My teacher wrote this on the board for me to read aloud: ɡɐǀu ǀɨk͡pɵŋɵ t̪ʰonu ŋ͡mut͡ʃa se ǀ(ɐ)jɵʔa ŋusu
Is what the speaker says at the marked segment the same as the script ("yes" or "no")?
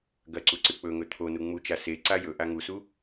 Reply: no